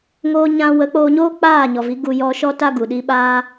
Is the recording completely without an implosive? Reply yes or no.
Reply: no